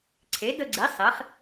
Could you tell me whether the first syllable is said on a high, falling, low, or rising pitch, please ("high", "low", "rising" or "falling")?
rising